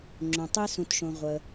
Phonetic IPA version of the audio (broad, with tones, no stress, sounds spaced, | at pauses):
ŋ͡ǁ õ˩ tˤ i˧ s ũ˩ t ʃ õ˩ ʁʷ ə˩